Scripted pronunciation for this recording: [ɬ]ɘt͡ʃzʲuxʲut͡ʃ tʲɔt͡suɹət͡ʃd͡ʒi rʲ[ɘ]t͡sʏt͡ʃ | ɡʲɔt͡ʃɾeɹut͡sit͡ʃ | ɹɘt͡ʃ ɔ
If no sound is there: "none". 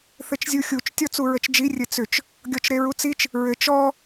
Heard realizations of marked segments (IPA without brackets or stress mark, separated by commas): θ, ɘ